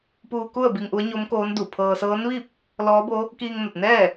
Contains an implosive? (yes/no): no